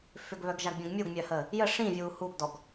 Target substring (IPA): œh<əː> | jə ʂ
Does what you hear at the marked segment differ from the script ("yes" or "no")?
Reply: no